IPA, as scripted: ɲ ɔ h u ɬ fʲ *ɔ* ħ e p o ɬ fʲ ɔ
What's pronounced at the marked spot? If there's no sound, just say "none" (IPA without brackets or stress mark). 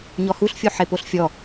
o